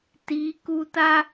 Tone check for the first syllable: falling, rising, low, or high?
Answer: rising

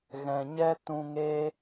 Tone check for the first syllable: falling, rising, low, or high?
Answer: low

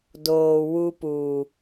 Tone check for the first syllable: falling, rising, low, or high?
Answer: low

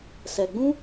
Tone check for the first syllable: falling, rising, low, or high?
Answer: low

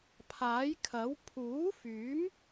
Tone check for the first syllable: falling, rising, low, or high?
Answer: rising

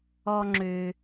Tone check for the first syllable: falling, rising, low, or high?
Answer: low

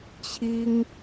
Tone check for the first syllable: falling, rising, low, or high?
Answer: high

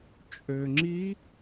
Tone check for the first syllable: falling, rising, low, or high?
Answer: low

